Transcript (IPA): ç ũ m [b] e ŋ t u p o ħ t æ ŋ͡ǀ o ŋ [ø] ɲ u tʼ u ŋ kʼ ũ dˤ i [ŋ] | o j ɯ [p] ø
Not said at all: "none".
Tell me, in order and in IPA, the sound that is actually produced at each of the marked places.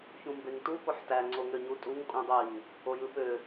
b, ø, ŋ, p

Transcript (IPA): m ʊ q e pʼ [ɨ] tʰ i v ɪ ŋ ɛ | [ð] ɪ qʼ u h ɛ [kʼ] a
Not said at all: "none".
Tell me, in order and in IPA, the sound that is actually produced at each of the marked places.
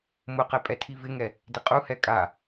ɛ, d, kʼ

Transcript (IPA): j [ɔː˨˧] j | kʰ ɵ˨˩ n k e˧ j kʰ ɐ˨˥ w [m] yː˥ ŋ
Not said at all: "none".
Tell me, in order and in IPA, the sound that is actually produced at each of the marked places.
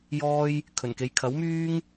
ɔː˥, m

